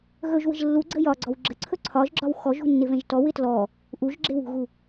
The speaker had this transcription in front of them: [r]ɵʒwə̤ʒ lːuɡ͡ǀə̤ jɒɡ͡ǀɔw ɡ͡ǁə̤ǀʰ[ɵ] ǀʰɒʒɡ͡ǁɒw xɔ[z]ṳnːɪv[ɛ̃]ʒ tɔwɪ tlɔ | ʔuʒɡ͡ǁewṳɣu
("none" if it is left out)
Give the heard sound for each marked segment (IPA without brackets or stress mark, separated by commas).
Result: ɣ, ɵ, ʒ, ɛ̃